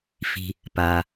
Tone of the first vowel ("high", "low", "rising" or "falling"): low